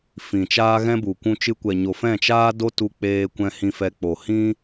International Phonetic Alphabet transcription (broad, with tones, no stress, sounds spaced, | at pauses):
f ĩ˨ t͡ʃ aː˦ ɣ ɛ̃˦ b u˨ kʷ ũ˧ t͡ʃ ɨ˧ kʷ ɛ˨ ɲ o˨ f ɛ̃˦˨ t͡ʃ aː˦ d o˦ t u˧ k͡p eː˧ kʷ ɛ̃˧ h ĩ˧ f ɛ˧ k͡p o˨ h ĩ˦